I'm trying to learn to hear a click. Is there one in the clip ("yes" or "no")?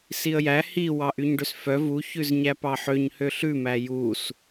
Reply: no